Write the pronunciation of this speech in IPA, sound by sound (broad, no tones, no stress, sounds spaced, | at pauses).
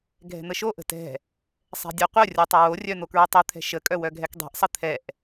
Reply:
ɡʱ ɛ̤ n̪ ə ʃ o ʔ ə̤ t ɛ̤ | sˤ ɛ̤ dʲ ɛ qʷ œ rʲ o tˤ ə w o rʲ œ n̪ o k ɹ ø tˤ œ t̪ʰ ɛ̤ ʃ ə kʼ œ w œ ɡʱ ɛ k dˤ ɛ̤ ʔ sˤ ə t̪ʰ ɛ ʔ